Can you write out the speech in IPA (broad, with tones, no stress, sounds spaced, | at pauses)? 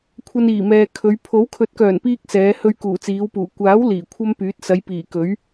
kʷʰ ɐ˧ n iː˨˩ m ɛː˨ kʰ ɵ˨˧ ɥ pʰ o˨˥ w kʰ ɵ˨˥ t̚ k œː˨˩ n p iː˧ k̚ s ɛː˨˧ h ɵ˧ ɥ k uː˨˩ t͡s iː˨˧ w p uː˨˩ kʷ aː˨˥ w l iː˨˩ kʷʰ ɐ˥ m p yː˨˥ t̚ s ɐ˨˧ j p iː˨˩ k ɵ˨˥ ɥ